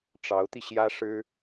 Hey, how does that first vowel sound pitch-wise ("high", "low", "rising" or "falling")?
rising